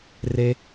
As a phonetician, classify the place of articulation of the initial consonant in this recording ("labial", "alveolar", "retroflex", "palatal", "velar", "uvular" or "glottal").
alveolar